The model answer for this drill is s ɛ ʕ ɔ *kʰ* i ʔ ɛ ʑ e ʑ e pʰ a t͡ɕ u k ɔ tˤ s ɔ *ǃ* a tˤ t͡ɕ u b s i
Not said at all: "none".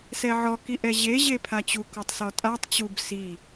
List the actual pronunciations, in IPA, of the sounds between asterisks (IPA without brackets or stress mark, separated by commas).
k, tʼ